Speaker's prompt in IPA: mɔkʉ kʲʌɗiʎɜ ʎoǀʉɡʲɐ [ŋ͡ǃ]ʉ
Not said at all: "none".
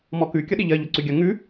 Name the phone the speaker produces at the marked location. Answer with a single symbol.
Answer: ŋ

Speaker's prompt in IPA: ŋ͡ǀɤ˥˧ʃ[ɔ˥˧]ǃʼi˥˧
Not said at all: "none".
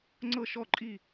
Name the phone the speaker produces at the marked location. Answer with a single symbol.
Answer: ɔ˥˧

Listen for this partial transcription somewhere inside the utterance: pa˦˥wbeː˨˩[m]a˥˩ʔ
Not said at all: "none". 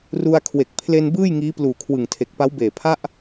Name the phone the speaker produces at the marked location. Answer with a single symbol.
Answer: pʰ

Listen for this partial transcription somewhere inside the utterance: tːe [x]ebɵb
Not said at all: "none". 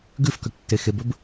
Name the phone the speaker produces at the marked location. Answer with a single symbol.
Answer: x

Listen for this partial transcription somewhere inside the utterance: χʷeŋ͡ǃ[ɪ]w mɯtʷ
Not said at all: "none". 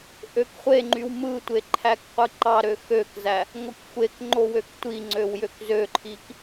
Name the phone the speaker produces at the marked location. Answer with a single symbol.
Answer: y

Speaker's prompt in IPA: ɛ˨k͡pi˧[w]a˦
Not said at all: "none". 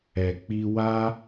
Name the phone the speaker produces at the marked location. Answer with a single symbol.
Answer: w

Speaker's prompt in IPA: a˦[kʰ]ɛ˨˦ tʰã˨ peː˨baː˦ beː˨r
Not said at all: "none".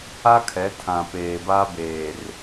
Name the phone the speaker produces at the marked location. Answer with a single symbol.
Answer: kʰ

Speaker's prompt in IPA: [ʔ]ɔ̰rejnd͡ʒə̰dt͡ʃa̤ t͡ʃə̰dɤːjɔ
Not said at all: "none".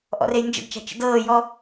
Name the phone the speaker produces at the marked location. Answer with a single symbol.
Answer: ʔ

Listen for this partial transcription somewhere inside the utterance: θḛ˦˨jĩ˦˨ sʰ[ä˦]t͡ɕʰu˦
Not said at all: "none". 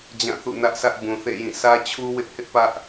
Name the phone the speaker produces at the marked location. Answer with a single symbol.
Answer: ä˦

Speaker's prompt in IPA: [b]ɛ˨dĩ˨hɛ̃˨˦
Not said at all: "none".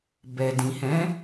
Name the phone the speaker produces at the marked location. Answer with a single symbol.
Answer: b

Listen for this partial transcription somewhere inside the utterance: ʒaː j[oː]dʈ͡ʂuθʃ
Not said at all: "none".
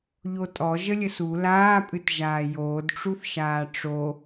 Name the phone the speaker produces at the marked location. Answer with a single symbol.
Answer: oː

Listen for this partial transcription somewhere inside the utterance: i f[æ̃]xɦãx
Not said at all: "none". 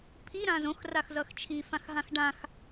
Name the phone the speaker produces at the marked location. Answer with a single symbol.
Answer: ã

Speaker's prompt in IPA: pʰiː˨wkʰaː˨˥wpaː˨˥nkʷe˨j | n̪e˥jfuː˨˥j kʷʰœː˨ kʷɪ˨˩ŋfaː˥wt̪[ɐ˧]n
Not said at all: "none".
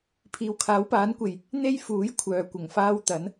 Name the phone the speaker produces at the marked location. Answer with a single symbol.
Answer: ɐ˨˥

